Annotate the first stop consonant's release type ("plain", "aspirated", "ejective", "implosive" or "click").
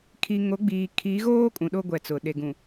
aspirated